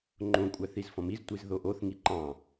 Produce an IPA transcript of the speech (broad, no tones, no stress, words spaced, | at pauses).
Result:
ŋ͡ǃõkʷʼæθ izfɔ̃miztʷiz ðoʔoθŋi ǃɑ̃